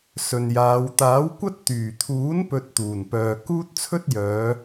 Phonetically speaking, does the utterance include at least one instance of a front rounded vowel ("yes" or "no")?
yes